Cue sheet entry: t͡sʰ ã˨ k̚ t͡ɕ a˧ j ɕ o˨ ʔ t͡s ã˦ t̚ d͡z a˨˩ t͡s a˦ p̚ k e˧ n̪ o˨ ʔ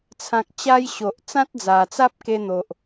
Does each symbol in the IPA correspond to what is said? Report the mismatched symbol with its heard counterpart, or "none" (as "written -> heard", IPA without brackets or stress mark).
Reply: none